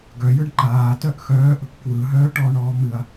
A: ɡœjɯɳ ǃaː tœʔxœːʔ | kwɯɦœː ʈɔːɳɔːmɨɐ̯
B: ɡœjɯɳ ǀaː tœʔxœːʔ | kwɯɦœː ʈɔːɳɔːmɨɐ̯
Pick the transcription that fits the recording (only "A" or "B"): A